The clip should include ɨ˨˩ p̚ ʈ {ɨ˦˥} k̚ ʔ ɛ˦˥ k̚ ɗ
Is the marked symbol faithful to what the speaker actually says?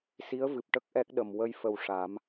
no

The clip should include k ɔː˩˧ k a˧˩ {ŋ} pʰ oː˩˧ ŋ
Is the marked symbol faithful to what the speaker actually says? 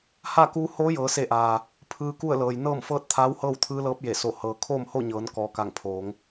yes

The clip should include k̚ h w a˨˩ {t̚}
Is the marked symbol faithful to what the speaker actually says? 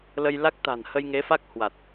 yes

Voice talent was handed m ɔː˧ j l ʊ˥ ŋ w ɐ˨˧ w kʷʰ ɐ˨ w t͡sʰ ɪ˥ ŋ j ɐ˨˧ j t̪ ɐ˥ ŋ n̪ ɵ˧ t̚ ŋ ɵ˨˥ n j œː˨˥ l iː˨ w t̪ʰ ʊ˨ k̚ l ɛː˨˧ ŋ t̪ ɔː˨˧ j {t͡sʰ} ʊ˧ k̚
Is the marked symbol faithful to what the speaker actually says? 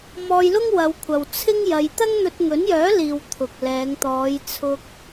yes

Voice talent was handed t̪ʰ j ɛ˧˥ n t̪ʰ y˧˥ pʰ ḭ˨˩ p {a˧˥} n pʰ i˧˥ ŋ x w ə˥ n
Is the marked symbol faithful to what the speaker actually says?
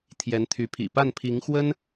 no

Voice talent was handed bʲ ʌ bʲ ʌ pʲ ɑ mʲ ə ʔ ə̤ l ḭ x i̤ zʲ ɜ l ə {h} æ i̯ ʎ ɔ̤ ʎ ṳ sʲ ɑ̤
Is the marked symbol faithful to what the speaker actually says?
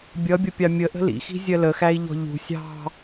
no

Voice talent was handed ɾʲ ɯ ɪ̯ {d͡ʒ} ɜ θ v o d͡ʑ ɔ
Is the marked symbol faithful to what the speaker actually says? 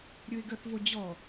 no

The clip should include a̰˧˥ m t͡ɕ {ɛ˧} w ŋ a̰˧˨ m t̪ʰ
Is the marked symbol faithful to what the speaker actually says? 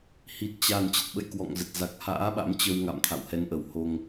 no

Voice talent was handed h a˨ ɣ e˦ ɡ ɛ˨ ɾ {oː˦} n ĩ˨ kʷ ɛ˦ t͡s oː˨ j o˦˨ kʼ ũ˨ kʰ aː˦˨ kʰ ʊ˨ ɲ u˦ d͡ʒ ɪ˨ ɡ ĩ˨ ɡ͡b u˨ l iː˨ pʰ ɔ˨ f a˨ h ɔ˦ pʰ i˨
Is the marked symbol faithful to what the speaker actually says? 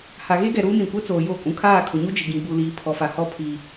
no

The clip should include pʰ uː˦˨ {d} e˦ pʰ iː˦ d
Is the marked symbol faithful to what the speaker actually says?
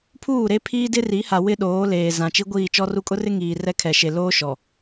no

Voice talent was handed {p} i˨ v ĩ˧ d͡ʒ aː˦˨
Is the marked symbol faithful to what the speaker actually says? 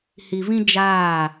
no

